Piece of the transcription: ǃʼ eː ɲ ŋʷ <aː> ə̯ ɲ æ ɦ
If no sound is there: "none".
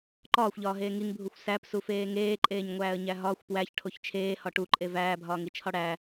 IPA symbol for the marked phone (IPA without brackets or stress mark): æː